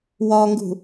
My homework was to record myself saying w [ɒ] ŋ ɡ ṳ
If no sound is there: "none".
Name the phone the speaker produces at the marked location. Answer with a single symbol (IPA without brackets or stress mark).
ɒ